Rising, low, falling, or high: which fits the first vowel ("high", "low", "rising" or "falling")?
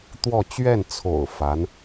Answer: falling